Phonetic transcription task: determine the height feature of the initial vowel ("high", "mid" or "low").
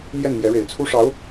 mid